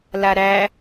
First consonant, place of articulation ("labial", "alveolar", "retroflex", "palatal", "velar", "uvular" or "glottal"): alveolar